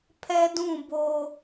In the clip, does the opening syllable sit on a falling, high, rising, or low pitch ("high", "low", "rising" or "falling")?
high